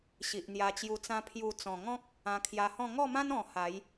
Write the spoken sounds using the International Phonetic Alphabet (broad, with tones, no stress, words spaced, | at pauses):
ɕi˨ʔn̪ja˧t͡ɕju˧t͡sã˦ pʰju˧ t͡sɔ̃˨˩ŋɔ̃˦k̚ | ã˧kʰja˧hɔ̃˥˧ ŋɔ˥˧mã˦nɔ̃˨˩ ha˨˦j